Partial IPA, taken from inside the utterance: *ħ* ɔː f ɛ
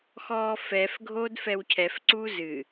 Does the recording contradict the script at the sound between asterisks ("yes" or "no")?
yes